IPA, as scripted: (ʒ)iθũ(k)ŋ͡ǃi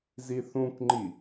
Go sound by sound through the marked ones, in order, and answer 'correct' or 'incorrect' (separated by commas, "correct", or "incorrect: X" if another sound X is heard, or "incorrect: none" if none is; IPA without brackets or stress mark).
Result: incorrect: z, correct